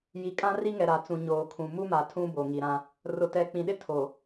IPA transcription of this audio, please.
j i˨ kʼ ã˦ r i˦ ŋ ɛ˨ ɾ a˨ t͡s ũ˨ ɲ oː˨ kʰ ũ˨ m u˦ m a˨ tʰ ũ˦ b o˨ ŋ i˨ ɾ ã˦ | r ʊ˨ t ɛ˨ k͡p ĩ˨ ɗ ɪ˦ tʰ o˨

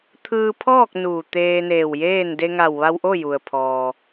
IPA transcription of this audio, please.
t̪ʰ ɯː˧ pʰ ɔː˥˨ k̚ n uː˧˩ t̪ eː˧ n eː˧˩ w j eː˥˨ n d e˧ ŋ a˧˩ w ʋ a˧ w ʔ o˥˨ j u˩ ə̯ pʰ ɔː˩

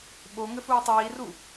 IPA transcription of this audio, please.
ɓ o ŋ ɘ f uː tˤ iː r u

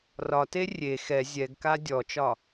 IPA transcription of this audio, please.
r ɒ t e rʲ e x ɛ zʲ ɛ ɡ k a dʲ ɔ t͡ʃ ɒ

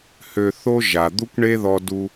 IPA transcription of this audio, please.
h ø˧ θ o˥ ʒ a˩ d̪ u˥ kʷ ɳ e˥ ð ɔ˧ d u˧

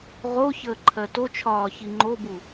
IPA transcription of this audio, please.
ʁ o ç əː ǃʰ ɜ t o t͡ʃʰ ɒː ç i ŋ͡ǃ o b u

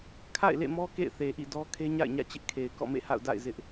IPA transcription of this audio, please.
kʰ a̰˦˨ ɪ̯ l ḛ˦˨ m ɔ˦ k ḛ˦˨ ɪ̯ θ e˨ ʔ ḭ˦˨ d ɔ˦ kʰ e˦ ɲ a̰˦˨ ɪ̯ ɲ ä̰˦˨ t͡ɕ ɪ˦ ʔ kʰ e˨ ɪ̯ k ɔ̰˦˨ m ḛ˦˨ h a̰˦˨ ʊ̯ d a̰˦˨ ɪ̯ z ɪ˦ ʔ

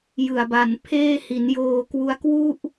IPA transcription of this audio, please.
j ɯ˨˩ a̯ b a˨˩ n pʰ eː˥˩ h i˩˦ n j oː˧ k w u˦˥ a̯ k w u˥˩ ʔ

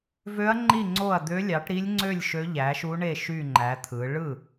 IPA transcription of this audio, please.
v ø˧˥ ɐ̯ ŋ͡ǃ i˥˩ ŋ͡ǀ o˥˩ ɐ̯ d̪ ø˧˥ lʲ ɑ˩˥ ʈ ɾ i˧˥ lʲ ŋ͡ǀ ø˥˩ lʲ ʃ ø˧˥ ʎ æ˩˥ ʃ u˧˥ ɳ e˥˩ ʃ y˥˩ ŋ͡ǃ æ˩˥ t̪ʰ ɯ˩˥ ɭ ɯ˥˩

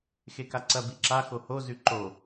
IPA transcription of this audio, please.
x e k a ǀ ɐ b i ǁ a x o h o z ʉ ǃ o

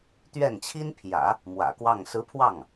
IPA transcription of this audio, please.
t̪ ɥ ɛ˥˩ n t͡ɕʰ i˥ n pʰ j ä̰˨˩˦ | m w ä̰˨˩ k w ɑ˥˩ ŋ s ɹ̩˧˥ pʰ w ɑ˥˩ ŋ

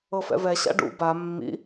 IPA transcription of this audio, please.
ɤ f ɛ̰ v ɛ ɕ a̰ ɖ ṵ b a mː ḭ

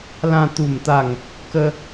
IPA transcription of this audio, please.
l ã˧ t̪ u˥˧ m t̪ a˥˧ ŋ | k ə˦

